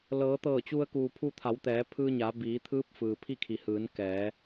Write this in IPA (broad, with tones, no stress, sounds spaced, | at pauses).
l ɤː˩˧ t̪ ɤː˧˩ t͡ɕ u˧ ə̯ k uː˩ pʰ u˧ t̪ʰ a˩˧ w t̪ ɛː˩˧ pʰ ɯː˧ ɲ a˩˧ b iː˩˧ t̪ʰ ɯː˧˥ p̚ f ɯː˩ pʰ i˥˨ kʰ i˩ h ɯː˩˧ n k ɛː˩˧